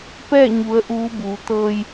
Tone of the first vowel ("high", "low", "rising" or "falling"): falling